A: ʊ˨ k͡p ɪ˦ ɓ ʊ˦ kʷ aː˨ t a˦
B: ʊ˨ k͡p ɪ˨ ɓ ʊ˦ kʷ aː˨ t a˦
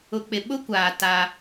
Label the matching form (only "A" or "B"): B